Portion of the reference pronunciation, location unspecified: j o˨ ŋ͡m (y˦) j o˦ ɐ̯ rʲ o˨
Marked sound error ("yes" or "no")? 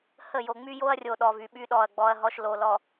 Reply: no